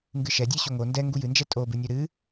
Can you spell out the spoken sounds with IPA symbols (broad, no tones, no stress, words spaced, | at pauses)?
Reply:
ŋɡɨʃɛ dʲɨɕoŋo ndɛ ŋɡujɨnd͡ʒɛ tʼobɨnʲo ɾɨ